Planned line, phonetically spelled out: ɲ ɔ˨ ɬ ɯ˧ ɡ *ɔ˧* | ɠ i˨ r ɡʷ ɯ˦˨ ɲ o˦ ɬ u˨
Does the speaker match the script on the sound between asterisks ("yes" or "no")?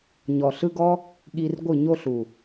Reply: yes